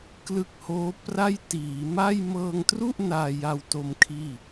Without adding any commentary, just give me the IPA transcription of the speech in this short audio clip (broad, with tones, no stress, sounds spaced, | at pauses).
k l ɯ˦˥ k̚ h oː˦˥ p r a˥˩ j t iː˩˦ m a˥˩ j m ɤː˧ ŋ t r u˥˩ ʔ n aː˧ j a˧ w t o˧ m kʰ iː˥˩